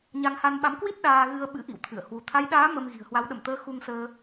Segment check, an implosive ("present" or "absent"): present